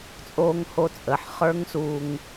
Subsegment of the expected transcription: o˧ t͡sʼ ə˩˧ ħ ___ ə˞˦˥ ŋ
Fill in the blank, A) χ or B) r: A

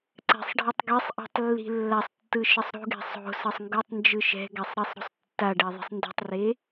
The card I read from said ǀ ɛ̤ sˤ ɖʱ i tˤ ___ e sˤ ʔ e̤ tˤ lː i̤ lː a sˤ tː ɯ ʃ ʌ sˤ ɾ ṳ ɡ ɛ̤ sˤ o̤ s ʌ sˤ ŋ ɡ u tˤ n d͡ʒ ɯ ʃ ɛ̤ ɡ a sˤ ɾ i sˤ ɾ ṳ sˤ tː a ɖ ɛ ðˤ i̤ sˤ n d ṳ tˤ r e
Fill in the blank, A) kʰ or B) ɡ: B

